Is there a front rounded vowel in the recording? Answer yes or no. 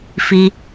no